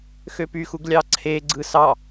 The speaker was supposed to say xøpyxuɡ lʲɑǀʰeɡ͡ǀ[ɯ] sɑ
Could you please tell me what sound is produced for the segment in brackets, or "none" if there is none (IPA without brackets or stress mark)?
ɯ